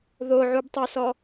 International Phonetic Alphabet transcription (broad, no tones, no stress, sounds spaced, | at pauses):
ð o ʕ u b tˤ o s ɔ